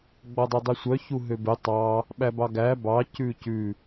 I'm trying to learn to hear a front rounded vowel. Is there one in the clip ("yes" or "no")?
yes